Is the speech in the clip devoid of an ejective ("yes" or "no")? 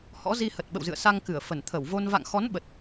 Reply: yes